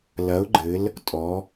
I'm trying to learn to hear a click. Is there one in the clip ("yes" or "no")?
yes